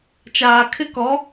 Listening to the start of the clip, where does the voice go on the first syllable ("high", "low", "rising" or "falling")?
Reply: low